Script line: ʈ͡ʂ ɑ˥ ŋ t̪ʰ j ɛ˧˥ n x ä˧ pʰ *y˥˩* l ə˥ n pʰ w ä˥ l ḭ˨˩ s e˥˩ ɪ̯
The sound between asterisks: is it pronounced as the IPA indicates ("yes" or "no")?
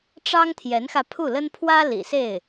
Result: no